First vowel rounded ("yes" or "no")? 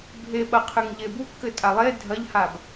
no